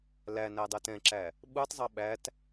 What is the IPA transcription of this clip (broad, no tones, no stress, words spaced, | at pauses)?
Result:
læ nædˤɛtɛ̃ǁæ | ɓutˤzˤʌ ɓæt